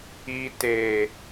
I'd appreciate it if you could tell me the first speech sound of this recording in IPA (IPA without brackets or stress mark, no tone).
i